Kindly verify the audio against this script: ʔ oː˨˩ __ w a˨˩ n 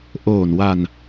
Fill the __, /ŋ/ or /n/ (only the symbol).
n